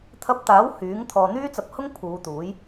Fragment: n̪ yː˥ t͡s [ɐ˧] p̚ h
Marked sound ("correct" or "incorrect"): correct